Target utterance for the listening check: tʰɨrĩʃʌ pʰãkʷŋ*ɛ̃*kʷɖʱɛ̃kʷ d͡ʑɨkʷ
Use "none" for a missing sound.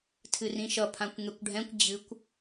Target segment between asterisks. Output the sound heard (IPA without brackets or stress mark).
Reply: ɛ